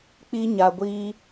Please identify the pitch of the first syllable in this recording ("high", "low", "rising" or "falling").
high